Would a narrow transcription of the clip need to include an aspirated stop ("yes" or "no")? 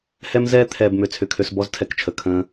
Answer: yes